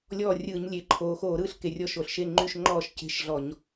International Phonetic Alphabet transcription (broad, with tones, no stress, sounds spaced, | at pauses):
lʲ ɔː˦˨ rʲ ɯː˧˩˧ ɲ lʲ e˩˧ ǃʰ oː˩˧ x oː˧˩˧ ɾ ɯː˦˨ ɬ k e˩˧ rʲ ɔ˦˨ ʃ o˧˩˧ ɬ ʃ e˦˨ ŋ͡ǃ y˦˨ ʃ ŋ͡ǃ ɔː˦˨ ʃ c e̤˦˨ ʃ ɮ ɔ˧˩˧ ɲ